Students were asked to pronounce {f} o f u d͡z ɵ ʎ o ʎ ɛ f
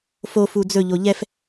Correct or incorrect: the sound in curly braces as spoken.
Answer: correct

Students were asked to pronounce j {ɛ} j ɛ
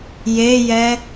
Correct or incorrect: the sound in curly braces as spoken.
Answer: incorrect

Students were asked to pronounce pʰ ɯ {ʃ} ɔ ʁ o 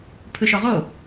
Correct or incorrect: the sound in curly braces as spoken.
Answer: correct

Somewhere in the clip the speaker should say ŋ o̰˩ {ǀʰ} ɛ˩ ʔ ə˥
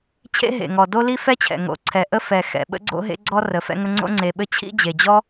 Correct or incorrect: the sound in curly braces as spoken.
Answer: correct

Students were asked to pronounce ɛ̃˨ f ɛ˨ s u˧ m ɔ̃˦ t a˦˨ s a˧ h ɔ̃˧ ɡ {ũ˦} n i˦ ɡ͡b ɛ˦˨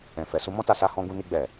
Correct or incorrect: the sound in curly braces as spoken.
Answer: incorrect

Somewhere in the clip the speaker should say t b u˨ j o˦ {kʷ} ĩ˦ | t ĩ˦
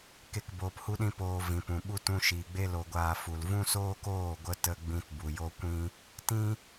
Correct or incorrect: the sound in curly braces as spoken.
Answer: correct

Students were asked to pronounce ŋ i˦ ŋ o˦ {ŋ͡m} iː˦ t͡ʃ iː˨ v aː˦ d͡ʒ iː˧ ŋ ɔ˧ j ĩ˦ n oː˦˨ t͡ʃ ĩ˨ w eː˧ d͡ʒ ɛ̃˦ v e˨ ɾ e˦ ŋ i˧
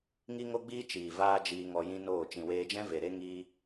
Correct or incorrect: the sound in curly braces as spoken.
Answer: incorrect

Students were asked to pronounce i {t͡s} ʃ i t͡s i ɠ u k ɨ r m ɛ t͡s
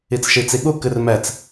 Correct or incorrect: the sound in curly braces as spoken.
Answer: correct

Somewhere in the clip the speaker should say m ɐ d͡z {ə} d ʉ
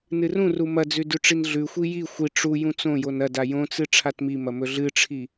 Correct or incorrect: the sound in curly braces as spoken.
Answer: incorrect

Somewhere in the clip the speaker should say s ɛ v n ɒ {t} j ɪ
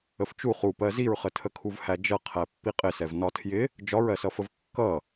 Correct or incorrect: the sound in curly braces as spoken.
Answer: incorrect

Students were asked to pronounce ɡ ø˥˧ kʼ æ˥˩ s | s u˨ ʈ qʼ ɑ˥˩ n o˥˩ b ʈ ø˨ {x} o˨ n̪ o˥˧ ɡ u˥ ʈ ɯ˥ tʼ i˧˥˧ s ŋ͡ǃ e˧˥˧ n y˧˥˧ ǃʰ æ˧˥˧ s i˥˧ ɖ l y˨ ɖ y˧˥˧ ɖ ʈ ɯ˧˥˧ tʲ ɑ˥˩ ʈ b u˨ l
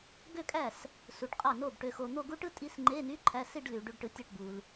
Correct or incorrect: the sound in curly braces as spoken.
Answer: correct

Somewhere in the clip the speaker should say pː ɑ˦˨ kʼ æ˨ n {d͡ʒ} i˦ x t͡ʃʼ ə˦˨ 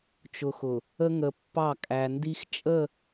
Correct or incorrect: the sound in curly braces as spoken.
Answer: incorrect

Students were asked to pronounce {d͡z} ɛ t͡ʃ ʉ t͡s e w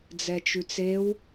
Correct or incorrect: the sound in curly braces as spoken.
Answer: correct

